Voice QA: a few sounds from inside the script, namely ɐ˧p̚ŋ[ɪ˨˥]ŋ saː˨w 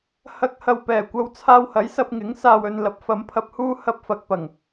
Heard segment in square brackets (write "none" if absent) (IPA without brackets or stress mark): ɪ˨˥